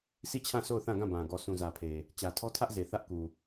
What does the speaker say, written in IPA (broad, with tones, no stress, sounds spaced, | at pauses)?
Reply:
s i˦˨ t͡ɕʰ ã˦˨ s o˦˨ ʊ̯ θ ã˦˨ ɡ ã˦˨ b ã˨ ɡ ɔ˨ sʰ ũ˨ z ä˨ pʰ e˨ | t͡ɕ ä˨ tʰ ɔ˦ tʰ ä˦ ʔ z e˨ θ ä˦ ʔ k u˨